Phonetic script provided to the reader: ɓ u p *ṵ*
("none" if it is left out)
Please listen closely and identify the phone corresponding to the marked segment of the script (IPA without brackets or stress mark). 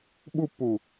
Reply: u